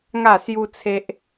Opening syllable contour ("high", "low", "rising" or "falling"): falling